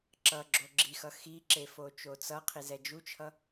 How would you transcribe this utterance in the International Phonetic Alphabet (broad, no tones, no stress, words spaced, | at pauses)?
ǁʌ ɡ͡ǁoɡ͡ǁixʌ xiǁe fot͡ʃot͡sʌqʰi zɛd͡ʒut͡ʃʰʌ